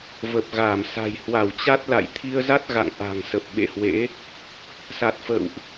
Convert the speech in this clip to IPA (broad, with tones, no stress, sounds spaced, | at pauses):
v ə˨˩ p̚ ɣ aː˧˩ m s a̤˨˩ j h w a˧˩ w t͡ɕ a˦˥ t̚ l a̰˧˨ j t̪ʰ i˧ ə̯ z a˦˥ t̚ ɣ a̰˧˨ ŋ ʔ a̤˨˩ ŋ s ə˨˩ p̚ ɓ ḛ˧˨ h w ḛ˧˥ | s a˨˩ t̚ f ə̰ː˧˨ w ʔ